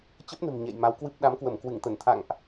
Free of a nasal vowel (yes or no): yes